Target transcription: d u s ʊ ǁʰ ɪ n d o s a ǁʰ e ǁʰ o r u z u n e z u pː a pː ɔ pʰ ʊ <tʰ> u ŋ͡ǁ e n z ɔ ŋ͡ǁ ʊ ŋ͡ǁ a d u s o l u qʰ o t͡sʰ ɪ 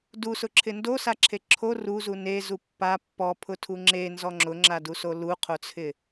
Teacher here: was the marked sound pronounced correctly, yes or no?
yes